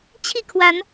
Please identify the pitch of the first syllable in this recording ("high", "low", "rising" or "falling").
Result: falling